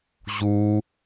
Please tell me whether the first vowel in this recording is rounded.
yes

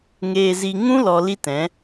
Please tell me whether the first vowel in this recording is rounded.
no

